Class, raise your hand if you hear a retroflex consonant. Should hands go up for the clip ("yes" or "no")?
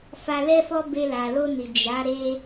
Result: no